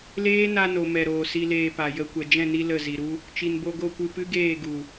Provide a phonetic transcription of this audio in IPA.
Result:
l eː˦ n a˧ n o˨ m ɛ˨ ɾ oː˨ s i˧ l eː˧ p a˨ j ə˧ kʷ ɛ˨ d͡ʒ ɛ̃˦˨ n i˧ l ə˦˨ z i˨ ɾ u˦ | t͡ʃ i˨ n b o˧ ɡ o˦˨ kʷ ɨ˧ p ɨ˦ ɡ eː˦˨ ɡ u˨

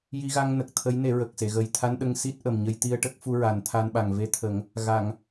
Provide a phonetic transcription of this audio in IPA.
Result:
j i˧ ɣ a˧ ŋ n ə˨˩ k̚ t̪ʰ ə˧˥ j n e˨˩˦ ɹ ə˨˩ k̚ s e˨˩˨ ɣ ə˨˩ j t̪ʰ a˧ n ɗ ə˧ ŋ s i˦˥ t̚ ʔ ə˨˩ m ɲ ə˧ j t̪ i˧ ə̯ ʈ ə˦˥ k̚ f u˧ ɹ a˨˩˦ n t̪ʰ a˧ n ɓ a˨˩ ŋ v e˧ t̪ʰ ə˨˩˦ ŋ | ɣ a˨˩˨ ŋ

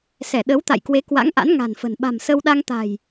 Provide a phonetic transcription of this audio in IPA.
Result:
s ɛ˧˩ ɗ ə˨˦ w t̪ a̰˧˨ j k w e˨˦ k w a̰˧˥ ŋ ʔ a̰˧˥ n ŋ a̤˨˩ n f ə̤˨˩ n ɓ a̤˨˩ m s ə˧ w ɗ a˧ ŋ t̪ a̤˨˩ j

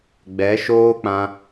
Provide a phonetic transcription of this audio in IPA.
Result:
ɡ͡b ɛ˨˦ ʃ oː˦ k͡p ã˧

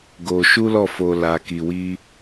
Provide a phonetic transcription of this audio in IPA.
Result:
ɡ o˧ ʃ u˦ l ɔ˦˨ f o˧ l a˧ k i˧ w i˦

